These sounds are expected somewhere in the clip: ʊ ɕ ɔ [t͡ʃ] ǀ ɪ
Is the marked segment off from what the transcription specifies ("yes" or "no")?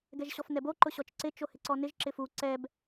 no